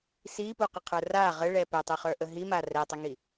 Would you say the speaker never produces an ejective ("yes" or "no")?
yes